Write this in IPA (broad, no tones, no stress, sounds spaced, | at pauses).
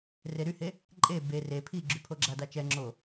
r e ɾ y h e | ǃʼ e b e r e pʰ i ɡ͡ǁ y pʰ o ɡ͡ǁ a d a t͡ʃ ɛ ŋ͡ǁ o